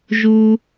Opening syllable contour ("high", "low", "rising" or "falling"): low